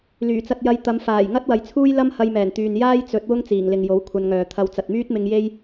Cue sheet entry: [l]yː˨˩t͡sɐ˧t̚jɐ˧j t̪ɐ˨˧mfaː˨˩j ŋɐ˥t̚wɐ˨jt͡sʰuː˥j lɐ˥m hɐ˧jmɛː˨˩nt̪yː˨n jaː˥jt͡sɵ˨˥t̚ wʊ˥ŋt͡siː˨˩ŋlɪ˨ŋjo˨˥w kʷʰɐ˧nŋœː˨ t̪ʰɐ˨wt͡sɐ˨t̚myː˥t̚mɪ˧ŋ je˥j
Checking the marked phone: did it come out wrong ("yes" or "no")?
no